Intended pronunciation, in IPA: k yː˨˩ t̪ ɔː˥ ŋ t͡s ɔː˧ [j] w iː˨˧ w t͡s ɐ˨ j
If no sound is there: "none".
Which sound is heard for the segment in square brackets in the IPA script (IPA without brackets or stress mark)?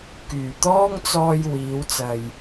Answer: j